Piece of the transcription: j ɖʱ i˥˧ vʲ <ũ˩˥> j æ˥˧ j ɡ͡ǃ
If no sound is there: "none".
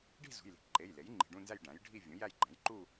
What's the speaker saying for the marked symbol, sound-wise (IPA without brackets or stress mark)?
ũ˩˥